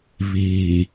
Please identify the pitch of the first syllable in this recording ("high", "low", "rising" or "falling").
low